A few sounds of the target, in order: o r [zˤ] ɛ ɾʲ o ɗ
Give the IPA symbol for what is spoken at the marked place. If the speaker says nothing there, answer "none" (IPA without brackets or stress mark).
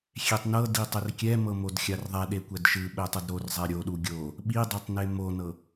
zˤ